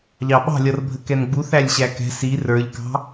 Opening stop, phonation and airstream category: implosive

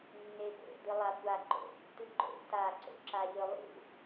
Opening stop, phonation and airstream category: plain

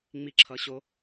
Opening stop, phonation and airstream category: click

